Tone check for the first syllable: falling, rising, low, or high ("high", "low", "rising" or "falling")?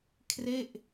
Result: falling